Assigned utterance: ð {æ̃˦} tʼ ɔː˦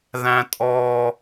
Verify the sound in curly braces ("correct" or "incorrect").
correct